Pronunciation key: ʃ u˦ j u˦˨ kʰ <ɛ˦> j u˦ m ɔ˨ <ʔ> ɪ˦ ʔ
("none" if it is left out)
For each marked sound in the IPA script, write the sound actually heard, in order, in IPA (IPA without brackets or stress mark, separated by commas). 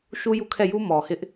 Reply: ɛ˦˨, h